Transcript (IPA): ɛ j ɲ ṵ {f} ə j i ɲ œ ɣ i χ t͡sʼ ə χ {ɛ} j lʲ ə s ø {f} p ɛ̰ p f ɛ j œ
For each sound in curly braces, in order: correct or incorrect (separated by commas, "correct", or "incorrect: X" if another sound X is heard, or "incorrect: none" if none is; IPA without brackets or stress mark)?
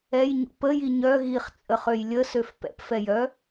incorrect: p, incorrect: ø, correct